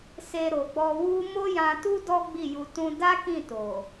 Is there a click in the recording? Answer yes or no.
no